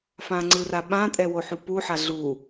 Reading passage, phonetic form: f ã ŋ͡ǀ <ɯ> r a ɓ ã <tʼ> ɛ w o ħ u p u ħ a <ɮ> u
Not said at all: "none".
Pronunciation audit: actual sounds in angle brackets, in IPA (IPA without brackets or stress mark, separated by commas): ɯ, tʼ, ɮ